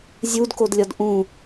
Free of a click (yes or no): yes